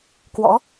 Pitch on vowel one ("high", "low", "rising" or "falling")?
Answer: rising